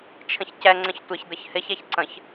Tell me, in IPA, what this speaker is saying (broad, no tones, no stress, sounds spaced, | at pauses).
t͡ʃʰ ə̃ ç c ɛ ŋ͡ǀ ə̃ ç tʷ ɪ ç d̪ ə ç h ɪ ç ɛ ç ǀ ə̃ ç